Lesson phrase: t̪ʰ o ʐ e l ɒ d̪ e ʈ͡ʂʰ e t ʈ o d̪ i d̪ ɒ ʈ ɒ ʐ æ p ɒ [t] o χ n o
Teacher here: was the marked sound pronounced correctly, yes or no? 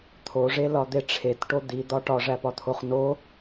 no